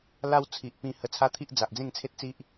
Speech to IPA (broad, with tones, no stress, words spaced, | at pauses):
la˧w t͡sʰi˨ʔpĩ˧ hə˧t͡sʰa˦t̪ʰi˦ʔ d͡za˨ʔd͡zẽ˥˧ŋt͡sʰe˦t̚t͡si˦ʔ